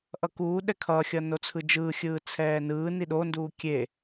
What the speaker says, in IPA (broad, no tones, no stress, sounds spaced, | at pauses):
ʔ ʌ k uː ɗ ɛ kʰ ʌː xʲ ʌː n o t͡sʰ ɯ d͡ʒ ɯː xʲ ɯː t͡sʰ ɛː n ɯː n i ɗ o n d uː kʲ e